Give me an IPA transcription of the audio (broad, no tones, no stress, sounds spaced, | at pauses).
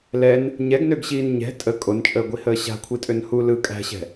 l ɛ n | ɲ ɛ ɡ n ø ɡ ɕ iː n ɲ ɛ̤ tʼ ə kʼ o n t͡ʃʼ əː ɡʷ i h əː ɕ a̤ kʷʰ i tʼ ø n h u l ɯ kʼ æ̤ ɕ ɛ̤